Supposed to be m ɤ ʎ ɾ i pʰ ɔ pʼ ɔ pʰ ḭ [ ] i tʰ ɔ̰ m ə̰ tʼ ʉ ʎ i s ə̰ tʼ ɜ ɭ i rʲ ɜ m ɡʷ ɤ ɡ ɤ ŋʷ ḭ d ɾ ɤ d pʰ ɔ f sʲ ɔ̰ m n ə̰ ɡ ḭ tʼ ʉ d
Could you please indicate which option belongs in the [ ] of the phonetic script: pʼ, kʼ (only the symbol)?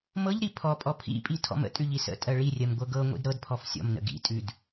pʼ